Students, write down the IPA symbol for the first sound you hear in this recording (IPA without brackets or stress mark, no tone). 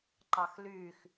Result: ǃ